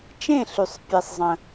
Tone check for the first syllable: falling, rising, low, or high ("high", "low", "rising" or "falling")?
falling